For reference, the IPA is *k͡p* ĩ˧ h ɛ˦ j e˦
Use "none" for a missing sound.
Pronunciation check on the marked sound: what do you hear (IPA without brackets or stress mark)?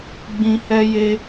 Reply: ɡ͡b